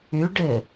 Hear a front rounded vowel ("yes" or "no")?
yes